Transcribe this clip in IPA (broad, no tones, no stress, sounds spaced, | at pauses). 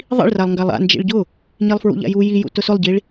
ðˤ ḭ ɭ r a lˠ ŋ ɡ a lˠ a̰ n d͡ʒ ḭ ɭ ɟ ʊ | ɲ i lˠ f ɹ ṵ ʎ a̰ j u j i j ṵ t ʊ s ʊ lˠ ɟ i ɭ